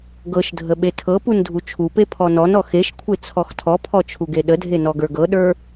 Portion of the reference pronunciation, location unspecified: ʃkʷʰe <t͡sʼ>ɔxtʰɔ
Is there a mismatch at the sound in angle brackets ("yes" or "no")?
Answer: yes